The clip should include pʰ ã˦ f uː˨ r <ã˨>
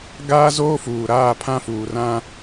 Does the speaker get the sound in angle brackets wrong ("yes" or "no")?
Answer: yes